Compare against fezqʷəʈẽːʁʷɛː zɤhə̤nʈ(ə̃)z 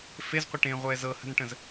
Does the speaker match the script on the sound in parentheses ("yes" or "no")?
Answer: yes